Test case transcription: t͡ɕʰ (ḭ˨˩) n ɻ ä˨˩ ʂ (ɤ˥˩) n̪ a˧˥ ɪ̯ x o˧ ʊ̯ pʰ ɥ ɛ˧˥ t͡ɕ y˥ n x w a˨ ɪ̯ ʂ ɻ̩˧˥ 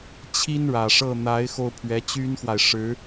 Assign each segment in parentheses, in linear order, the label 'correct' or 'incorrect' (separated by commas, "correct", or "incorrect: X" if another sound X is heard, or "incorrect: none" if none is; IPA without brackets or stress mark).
incorrect: i˥, correct